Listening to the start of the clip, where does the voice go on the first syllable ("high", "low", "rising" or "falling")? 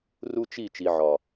high